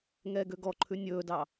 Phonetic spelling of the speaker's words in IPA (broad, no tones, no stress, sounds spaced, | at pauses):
ŋ ɛː ɡ ø ɡ ɔ ǃʰ ʉ nʲ ɵː d ɑ